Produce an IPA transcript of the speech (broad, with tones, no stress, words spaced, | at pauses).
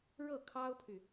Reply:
ɻɤ˥˩kʰɑ˥ʊ̯pʰy˨